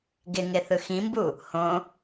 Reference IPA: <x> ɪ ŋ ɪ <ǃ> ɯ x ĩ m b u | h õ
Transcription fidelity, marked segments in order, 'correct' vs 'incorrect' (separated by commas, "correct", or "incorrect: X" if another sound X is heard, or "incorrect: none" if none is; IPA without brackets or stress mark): incorrect: ɡ, incorrect: θ